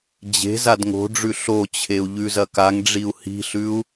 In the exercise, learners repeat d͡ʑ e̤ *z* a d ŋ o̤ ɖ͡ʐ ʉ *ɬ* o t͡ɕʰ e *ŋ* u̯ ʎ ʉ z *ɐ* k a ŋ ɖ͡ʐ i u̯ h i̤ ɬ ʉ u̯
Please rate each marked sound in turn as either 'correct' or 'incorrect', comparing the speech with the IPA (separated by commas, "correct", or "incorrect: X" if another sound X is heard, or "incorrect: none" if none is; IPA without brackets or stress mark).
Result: correct, correct, incorrect: none, correct